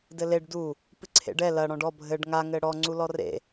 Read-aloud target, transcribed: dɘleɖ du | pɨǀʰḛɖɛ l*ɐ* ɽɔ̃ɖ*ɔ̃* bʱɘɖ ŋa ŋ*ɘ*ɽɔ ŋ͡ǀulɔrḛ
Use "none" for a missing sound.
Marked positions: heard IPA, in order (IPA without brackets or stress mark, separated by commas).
ɐ, ɔ, ɘ